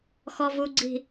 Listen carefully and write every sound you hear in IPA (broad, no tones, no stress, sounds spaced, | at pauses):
x ɔ v u ɡ͡ǀ i̤